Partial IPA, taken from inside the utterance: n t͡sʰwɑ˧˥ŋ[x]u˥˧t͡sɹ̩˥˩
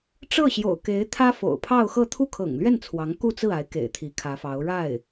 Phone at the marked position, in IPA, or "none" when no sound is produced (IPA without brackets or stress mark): k